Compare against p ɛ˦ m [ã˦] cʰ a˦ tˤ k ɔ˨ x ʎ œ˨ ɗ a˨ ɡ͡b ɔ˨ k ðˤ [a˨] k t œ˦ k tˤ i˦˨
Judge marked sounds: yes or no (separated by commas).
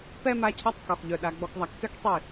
no, yes